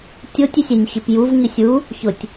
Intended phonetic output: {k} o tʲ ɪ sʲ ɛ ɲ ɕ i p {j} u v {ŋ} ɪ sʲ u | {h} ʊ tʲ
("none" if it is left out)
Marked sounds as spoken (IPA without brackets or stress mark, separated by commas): tʲ, j, ŋ, ç